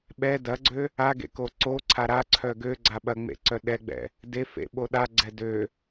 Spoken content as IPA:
ɓ ɛ d ɐ ɡ͡ǀ ø | a ɡ ḛ k o ǀ o ǀʰ a ɾ a ǀʰ œ ɡ ø ɡ͡ǀ a ɓ ɐ ŋ͡m ḛ ǀ œ ɗ ɛ ɡ͡b ɛ̰ | d e f ḛ ɓ o ɗ a ɡ͡ǀ ɛ d ø

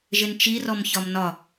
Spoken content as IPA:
ʒ ɪ n t͡ʃ i r ɔ m ç ɒ m n ɒ

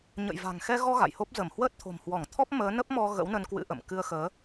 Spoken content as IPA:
ɲ ə̰˧˨ j v a̤˨˩ ŋ x ɛ˧ ɣ ɔ˧ ɣ a̰˧˨ j h o˦˥ p̚ z ə˧˩ m h w əː˦˥ t̚ t̪ʰ o̤˨˩ m h w ɔ˧˩ ŋ t̪ʰ ɔ˦˥ p̚ m əː˨˦ n ə˦˥ p̚ m ɔ˧ ɣ ə̰˧˥ w n ə˧ n k w ɨ̰˧˥ ʔ ə̰˧˨ m k ɨ˧ ə̯ x əː˨˦

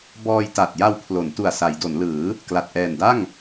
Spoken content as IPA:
b ɔː˧ j t a˨˩ t̚ j a˧ w pʰ l o˩˦ n t u˨˩ a̯ s a˩˦ j d o˩˦ n l ɯː˩˦ | k l a˨˩ t̚ ʔ ɛː˨˩ n d a˥˩ ŋ

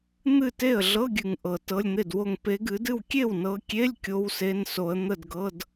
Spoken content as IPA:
n̪ ɨ˥˩ t e˥˩ ə̯ ɮ ɤ˧˥˧ ɡʲ ɨ˨˩ ŋ ʔ ɤ˨˩ t ɤ˧˥˧ lʲ n̪ e˥˩ d w o˥˩ ŋ p e˨˦ ɡ ɨ˨˦ d ɨ˥˩ w kʲ e˥˩ w n ɤ˨˦ kʲ e˧˥˧ lʲ kʲ o˧˥˧ w s e˧˥˧ n s o˨˦ ə̯ n̪ ə˥˩ d ɡ ɤ˧˥˧ d

